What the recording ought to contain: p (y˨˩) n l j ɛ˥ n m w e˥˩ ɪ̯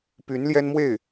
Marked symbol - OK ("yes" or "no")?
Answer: no